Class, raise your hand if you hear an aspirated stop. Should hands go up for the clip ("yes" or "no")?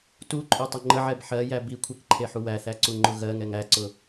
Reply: yes